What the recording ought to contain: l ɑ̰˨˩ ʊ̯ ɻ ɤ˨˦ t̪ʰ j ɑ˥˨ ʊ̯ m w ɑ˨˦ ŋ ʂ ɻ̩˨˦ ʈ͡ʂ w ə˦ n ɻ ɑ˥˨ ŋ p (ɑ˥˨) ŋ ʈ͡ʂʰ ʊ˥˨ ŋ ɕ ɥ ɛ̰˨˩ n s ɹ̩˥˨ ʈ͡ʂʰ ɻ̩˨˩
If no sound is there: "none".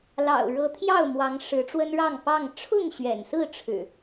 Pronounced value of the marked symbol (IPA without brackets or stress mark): ɑ˥˨